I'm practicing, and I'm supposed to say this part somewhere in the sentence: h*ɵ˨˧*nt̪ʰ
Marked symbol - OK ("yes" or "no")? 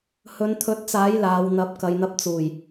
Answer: yes